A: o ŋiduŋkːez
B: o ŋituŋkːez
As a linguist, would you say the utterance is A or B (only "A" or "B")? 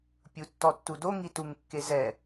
B